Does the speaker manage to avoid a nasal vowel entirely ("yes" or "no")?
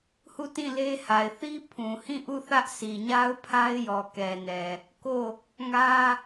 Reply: no